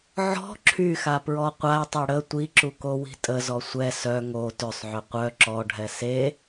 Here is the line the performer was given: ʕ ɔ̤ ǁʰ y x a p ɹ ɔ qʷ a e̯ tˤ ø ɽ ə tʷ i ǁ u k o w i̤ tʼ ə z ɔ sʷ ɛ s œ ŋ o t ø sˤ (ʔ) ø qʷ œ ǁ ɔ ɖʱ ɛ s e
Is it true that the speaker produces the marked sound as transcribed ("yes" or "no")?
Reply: no